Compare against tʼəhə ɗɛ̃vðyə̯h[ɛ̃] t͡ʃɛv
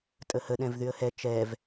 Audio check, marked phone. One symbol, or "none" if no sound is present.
ɛ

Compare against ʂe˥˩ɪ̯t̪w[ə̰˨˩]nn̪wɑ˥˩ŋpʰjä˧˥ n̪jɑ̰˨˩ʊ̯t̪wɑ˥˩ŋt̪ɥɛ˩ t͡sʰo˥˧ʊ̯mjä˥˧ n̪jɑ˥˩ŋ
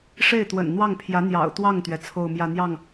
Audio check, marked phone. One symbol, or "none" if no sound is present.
ə̰˨˩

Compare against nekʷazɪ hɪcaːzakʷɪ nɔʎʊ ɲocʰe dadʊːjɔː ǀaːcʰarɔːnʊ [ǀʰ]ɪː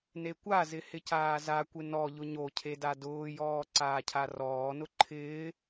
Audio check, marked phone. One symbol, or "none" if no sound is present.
ǃʰ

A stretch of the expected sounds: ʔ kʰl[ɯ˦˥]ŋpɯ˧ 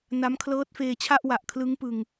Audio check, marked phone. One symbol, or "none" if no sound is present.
ɯ˦˥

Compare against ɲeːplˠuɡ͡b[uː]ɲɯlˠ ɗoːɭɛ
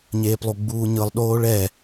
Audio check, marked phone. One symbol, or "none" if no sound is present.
uː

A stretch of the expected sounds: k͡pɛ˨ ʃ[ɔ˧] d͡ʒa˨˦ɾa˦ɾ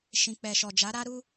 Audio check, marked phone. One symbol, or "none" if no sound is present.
ɔ˨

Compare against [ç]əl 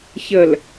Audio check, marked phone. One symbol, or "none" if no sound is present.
ç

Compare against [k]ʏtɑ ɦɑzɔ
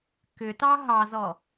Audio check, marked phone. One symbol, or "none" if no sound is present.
k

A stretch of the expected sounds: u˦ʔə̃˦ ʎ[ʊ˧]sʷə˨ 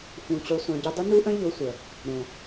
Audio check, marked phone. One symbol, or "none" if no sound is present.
ʊ˧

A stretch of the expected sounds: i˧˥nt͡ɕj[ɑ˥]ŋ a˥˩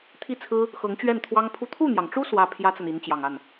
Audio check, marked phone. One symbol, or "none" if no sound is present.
ɑ˨˩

